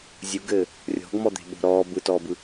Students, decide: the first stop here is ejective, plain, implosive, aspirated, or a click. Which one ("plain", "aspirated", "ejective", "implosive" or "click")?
plain